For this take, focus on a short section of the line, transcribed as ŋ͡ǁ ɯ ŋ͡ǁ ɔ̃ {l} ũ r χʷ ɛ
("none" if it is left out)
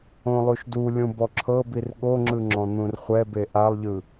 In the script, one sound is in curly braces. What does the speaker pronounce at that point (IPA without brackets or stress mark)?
n̪